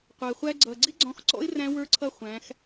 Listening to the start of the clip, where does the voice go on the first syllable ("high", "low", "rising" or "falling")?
low